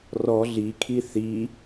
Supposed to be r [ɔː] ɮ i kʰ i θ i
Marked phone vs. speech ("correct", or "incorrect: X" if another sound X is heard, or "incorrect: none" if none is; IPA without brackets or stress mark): incorrect: ɔ